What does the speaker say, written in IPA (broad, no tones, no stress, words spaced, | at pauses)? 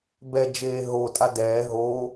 bɛd͡ʒeː ɦotʼa dɛː ɦo